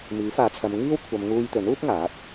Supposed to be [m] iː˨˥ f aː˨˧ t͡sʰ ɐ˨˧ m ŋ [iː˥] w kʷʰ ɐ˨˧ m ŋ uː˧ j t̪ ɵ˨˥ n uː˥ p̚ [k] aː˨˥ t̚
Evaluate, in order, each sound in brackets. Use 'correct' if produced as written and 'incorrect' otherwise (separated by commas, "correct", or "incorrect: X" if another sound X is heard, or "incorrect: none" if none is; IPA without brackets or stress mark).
correct, correct, incorrect: ŋ